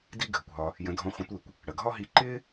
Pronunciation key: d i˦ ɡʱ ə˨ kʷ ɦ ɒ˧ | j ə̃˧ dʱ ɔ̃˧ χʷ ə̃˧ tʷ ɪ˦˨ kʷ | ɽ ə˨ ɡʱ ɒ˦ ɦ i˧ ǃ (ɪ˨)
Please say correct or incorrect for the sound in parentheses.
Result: incorrect